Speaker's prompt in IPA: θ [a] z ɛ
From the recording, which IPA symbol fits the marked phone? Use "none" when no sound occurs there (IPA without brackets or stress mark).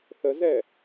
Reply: ə